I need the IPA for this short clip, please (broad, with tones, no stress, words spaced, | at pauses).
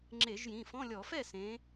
ŋ͡ǁe˧˩˧ʒjĩ˩˧˩fɔ̃˧˥˧lʲɔ˧˩˧ fɛ˥˩sẽ˩˧